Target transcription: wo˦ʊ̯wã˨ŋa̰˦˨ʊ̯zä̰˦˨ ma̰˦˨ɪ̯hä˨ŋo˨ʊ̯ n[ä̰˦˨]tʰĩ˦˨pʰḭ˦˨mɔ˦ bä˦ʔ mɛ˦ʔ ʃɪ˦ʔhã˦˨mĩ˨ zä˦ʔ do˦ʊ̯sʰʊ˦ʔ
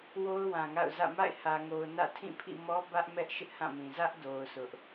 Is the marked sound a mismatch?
no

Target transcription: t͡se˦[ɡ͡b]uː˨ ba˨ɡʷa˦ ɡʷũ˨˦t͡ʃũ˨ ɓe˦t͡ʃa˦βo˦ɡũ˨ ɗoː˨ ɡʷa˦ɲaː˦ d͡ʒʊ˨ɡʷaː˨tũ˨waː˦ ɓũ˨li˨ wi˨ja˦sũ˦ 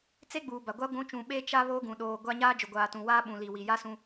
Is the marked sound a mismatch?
no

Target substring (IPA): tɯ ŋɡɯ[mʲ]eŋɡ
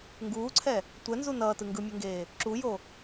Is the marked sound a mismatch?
no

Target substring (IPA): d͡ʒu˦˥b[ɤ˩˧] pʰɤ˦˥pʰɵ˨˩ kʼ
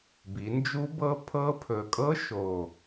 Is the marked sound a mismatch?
yes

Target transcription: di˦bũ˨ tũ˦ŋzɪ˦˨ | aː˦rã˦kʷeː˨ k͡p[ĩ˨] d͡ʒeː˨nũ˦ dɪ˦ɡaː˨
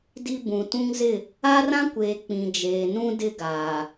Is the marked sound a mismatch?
no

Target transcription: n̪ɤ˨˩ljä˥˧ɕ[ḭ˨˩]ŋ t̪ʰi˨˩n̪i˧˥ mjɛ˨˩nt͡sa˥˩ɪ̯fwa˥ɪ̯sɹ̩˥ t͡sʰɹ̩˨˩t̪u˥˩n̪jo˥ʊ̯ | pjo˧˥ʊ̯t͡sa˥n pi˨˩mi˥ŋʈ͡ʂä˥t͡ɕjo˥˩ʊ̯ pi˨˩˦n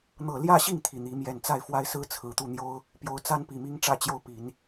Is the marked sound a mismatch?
yes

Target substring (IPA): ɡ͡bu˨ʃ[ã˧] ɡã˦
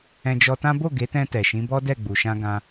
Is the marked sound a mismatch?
no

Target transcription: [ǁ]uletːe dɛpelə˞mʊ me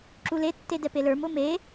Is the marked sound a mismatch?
no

